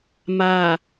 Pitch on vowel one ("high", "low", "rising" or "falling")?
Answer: low